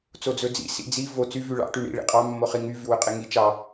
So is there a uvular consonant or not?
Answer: yes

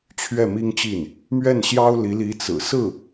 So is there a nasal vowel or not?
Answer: no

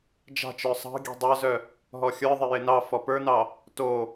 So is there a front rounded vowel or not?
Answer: yes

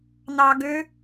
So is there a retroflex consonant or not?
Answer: no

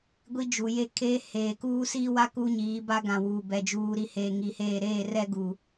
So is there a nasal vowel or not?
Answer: yes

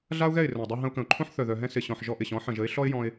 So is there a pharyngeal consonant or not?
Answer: yes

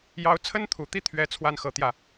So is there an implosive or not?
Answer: no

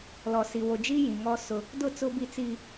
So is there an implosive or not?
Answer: no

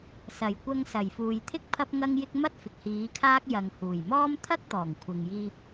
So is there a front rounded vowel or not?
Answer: no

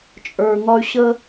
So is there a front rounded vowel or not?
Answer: yes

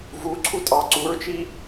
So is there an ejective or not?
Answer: yes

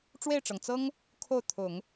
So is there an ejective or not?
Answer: no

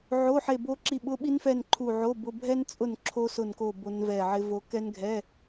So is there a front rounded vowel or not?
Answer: no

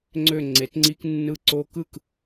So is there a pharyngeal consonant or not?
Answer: no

